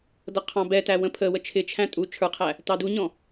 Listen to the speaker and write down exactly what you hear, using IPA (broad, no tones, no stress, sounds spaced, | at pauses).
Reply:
d ʌ qʰ ɑ̃ b ɛ t æ w ə̃ pʰ ə w ə t͡ʃʰ ɪ t͡ʃʰ æ̃ tʼ u t͡ʃʰ ə˞ qʰ æ | t ɑ d u ɲ ɔ̃